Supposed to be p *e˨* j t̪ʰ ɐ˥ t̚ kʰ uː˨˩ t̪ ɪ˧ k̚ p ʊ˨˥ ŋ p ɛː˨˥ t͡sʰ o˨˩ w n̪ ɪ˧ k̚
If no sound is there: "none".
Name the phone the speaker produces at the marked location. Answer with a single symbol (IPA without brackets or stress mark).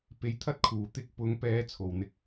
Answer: e˨˥